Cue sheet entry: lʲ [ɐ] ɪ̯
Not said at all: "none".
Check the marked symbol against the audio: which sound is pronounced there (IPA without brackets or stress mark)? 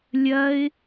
ɐ